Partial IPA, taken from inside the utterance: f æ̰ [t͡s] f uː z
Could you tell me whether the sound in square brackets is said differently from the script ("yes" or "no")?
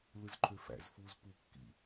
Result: yes